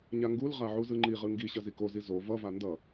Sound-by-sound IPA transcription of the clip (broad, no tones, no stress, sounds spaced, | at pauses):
ɲ a ŋ ɡ u l ʁ a ʕ u z ɯ ŋ͡ǃ i ʁ ɯ ŋ ɡ i ɕ ʌ z i k o z i z o v ʌ v a n d ʌ